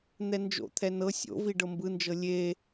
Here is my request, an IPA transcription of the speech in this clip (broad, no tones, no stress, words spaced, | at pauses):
n̪ɛnd͡ʒo̰t̪ʰɛ nɤ sʲo̰vi ɖɤmbɯnd͡ʒɤ lʲe